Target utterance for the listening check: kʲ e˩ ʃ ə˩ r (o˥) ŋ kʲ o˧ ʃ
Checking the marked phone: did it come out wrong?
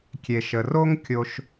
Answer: no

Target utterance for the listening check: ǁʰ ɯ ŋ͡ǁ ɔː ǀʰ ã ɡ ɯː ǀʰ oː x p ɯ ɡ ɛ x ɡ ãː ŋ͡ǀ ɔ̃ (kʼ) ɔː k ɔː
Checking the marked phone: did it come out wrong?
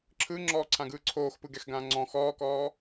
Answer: yes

